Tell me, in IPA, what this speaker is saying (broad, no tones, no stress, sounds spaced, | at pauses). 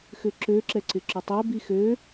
x ʏ ǁ ø ǁ ɛ ǀ ɪ ǁ ø tˤ œ b i x ø